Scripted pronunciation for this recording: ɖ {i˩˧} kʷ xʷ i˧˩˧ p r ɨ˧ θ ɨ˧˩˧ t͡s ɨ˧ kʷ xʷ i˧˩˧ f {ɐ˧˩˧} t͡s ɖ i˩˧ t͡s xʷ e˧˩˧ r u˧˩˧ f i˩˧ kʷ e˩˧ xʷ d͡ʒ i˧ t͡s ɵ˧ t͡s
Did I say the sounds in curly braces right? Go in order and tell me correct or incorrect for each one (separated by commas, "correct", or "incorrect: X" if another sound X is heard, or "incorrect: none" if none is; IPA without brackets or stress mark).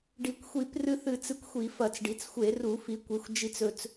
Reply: correct, correct